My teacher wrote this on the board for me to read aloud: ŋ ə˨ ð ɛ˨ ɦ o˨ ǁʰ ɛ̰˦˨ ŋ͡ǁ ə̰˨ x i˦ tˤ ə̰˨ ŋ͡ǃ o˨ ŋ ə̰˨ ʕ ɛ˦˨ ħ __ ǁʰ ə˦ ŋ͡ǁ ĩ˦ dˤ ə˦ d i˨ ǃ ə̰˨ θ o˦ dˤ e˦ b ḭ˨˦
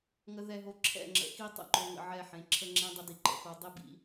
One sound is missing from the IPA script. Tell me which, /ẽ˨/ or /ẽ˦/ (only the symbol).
ẽ˨